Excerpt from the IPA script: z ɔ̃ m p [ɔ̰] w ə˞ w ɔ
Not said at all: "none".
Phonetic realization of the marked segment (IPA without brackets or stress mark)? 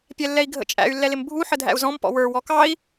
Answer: ɔ̰